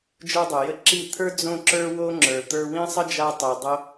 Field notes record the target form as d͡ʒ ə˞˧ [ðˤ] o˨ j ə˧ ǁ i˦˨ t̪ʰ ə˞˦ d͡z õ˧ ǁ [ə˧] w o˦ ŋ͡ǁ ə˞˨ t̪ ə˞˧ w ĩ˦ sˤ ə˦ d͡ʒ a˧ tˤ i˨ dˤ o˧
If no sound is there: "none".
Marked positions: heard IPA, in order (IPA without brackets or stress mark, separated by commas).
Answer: dˤ, ə˞˧